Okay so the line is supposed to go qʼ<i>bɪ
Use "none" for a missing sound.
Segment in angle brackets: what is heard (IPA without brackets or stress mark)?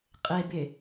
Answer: e